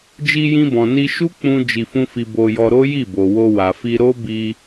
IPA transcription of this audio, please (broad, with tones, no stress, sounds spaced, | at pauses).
d͡ʒ i˧ j ĩ˧ b ɔ̃˨ n i˧ ʃ u˦ k͡p ũ˦ d͡ʒ i˧ f ũ˦ f i˧ b o˧ j ɔ˧ ɾ o˦ j i˦˨ b o˨ w o˧ w a˨ f i˧ ɾ o˦ b i˧